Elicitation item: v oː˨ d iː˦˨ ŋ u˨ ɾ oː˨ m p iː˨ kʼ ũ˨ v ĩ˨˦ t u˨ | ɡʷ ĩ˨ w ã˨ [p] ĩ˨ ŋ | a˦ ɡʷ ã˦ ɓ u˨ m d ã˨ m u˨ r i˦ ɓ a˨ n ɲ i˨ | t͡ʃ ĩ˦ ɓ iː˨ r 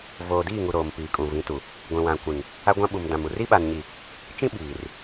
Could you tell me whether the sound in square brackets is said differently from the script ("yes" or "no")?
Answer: yes